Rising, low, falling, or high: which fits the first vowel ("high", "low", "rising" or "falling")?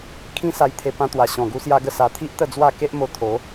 high